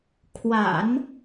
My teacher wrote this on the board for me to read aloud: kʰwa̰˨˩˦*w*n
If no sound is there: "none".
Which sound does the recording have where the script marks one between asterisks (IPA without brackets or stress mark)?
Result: none